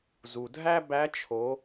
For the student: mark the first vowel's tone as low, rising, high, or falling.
low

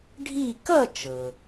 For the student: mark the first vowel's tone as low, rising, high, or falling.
falling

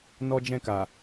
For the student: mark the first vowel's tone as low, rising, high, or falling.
high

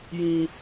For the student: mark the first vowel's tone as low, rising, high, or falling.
high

